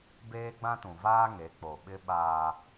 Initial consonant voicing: voiced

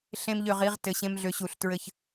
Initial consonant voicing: voiceless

